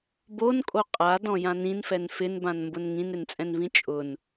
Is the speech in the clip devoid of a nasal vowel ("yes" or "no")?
no